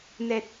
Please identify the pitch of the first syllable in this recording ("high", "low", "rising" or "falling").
low